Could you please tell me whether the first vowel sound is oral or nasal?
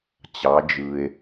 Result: oral